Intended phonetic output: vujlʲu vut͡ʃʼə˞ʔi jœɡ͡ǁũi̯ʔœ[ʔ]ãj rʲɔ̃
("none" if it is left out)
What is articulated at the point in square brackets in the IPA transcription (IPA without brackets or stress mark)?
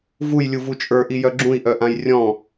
ʔ